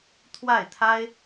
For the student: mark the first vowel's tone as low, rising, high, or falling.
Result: falling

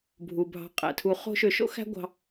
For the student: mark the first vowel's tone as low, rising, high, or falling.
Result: low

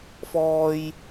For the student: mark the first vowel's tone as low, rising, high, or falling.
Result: high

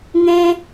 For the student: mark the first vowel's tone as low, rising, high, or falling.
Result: high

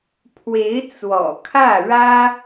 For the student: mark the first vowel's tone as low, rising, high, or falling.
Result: rising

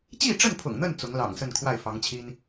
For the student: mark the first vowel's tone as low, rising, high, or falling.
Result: falling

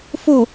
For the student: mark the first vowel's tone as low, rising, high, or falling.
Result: falling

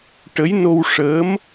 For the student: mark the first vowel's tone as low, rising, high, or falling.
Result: rising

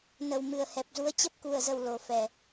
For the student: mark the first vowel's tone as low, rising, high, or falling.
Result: low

